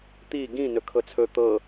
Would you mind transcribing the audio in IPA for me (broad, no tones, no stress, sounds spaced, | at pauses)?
t̪ i ɡ ĩ n ɵ kʰ ɤ t͡sʰ ɵ t̪ ɤ